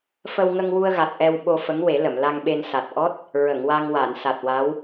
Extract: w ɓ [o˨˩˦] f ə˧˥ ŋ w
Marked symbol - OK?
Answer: no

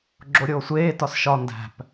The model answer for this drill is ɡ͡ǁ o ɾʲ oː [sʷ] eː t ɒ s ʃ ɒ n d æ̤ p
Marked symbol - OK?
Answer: yes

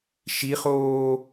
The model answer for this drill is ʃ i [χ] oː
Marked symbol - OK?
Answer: yes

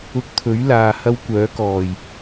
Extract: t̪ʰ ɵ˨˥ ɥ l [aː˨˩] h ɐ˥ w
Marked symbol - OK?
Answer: no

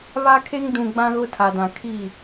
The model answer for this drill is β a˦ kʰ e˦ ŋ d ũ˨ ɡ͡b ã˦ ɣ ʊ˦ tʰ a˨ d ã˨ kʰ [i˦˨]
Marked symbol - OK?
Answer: yes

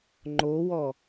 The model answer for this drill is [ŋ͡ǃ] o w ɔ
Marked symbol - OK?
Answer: yes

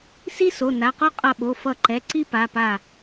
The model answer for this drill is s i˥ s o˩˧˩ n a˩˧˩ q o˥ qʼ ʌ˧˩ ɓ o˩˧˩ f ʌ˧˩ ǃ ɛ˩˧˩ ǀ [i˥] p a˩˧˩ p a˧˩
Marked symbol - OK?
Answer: yes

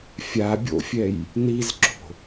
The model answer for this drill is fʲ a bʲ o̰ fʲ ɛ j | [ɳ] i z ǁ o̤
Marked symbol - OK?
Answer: no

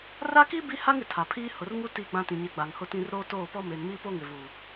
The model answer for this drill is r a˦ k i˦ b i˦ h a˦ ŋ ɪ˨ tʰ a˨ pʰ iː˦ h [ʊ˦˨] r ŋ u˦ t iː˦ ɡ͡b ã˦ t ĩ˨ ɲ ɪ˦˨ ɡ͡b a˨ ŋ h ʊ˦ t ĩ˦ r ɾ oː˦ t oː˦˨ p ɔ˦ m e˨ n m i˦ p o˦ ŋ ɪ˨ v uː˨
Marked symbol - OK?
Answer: no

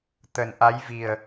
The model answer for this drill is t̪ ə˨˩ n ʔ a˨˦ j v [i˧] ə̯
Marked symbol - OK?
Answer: no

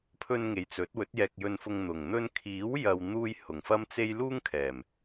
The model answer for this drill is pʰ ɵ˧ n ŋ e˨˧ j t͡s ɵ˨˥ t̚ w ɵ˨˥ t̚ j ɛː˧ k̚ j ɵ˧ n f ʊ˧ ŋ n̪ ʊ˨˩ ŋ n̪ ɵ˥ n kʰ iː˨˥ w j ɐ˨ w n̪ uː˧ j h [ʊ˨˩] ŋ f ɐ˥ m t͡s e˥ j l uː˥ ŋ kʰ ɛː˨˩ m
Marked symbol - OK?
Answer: yes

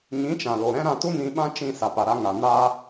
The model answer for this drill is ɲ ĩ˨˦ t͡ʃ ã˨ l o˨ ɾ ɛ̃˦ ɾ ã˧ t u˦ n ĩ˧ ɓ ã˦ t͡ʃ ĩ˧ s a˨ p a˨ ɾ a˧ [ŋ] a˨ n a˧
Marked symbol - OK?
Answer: yes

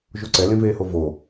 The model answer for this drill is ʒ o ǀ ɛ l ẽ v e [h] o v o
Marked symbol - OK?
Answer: yes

